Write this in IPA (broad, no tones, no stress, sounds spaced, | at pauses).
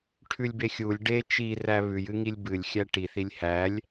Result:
ʈʰ ʉ lʲ b e xʲ u lʲ ɖ e t͡ʃ i r æ β ʉ j ɨ ŋ i lʲ b ɨ lʲ xʲ æ ʈ i θ i lʲ h æ lʲ